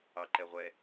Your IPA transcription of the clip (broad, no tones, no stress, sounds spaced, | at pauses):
ɑ ǃ ɛ ʁʷ ɛ